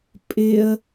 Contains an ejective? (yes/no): yes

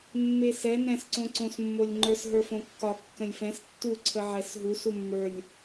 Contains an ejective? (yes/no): no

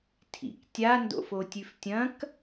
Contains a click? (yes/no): no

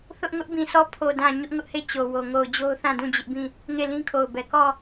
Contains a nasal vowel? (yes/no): yes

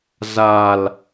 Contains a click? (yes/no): no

